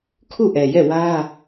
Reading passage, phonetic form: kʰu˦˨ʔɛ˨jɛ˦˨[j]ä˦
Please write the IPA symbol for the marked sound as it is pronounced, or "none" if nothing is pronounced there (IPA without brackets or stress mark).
w